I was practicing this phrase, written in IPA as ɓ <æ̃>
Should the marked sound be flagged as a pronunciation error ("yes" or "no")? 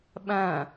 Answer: no